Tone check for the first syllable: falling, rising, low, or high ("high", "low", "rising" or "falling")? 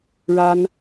high